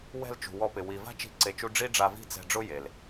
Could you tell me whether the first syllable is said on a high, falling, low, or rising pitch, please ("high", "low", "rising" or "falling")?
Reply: falling